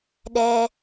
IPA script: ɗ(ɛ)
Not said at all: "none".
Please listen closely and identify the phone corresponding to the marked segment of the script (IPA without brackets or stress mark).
ɛ